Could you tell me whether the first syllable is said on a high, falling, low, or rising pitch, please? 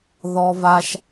high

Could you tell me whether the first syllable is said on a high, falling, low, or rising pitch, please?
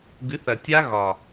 rising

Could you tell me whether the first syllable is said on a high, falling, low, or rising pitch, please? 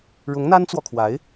rising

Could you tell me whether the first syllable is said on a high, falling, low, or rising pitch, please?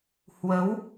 rising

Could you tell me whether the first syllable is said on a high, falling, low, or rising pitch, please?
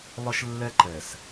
high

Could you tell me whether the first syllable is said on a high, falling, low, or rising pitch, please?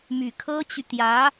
low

